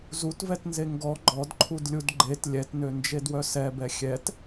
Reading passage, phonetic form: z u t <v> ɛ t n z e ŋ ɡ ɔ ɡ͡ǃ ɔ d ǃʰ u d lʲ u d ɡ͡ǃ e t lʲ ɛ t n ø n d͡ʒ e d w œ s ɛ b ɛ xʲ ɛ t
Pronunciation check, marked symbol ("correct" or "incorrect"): correct